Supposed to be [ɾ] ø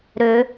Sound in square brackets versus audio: correct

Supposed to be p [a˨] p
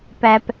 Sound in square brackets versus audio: incorrect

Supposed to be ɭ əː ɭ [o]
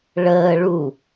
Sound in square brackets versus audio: incorrect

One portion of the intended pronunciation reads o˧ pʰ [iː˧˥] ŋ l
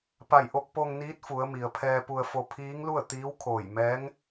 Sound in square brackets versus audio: correct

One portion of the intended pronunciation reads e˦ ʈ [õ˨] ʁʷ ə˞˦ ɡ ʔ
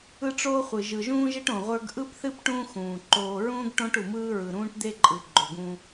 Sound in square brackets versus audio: correct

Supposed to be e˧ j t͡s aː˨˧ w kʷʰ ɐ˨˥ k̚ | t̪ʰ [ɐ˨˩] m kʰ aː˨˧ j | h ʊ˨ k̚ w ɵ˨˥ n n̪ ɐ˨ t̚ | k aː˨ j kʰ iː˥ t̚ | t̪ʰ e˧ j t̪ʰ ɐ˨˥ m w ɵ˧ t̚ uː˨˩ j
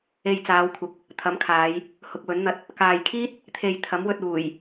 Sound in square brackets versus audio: incorrect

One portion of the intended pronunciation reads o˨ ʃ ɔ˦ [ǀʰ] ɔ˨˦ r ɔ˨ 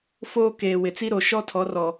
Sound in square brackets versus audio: incorrect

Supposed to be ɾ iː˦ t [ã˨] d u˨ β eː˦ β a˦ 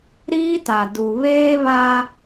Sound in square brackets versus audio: incorrect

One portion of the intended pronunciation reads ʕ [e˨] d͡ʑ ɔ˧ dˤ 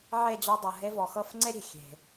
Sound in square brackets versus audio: incorrect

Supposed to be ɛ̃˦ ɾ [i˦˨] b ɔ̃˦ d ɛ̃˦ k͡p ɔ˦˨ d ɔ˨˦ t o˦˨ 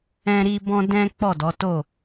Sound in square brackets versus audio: incorrect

